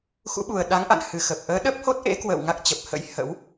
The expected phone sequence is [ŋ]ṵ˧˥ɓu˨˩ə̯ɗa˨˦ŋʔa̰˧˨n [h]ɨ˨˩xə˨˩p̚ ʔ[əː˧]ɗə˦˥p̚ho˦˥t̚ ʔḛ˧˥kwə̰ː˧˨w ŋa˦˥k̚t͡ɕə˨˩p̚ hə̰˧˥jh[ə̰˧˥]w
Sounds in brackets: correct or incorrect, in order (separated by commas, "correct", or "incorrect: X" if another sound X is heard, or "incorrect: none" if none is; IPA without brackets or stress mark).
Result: incorrect: x, correct, incorrect: əː˨˦, correct